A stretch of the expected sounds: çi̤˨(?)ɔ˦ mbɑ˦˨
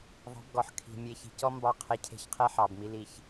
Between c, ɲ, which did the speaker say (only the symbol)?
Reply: c